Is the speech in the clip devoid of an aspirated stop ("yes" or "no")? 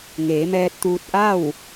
yes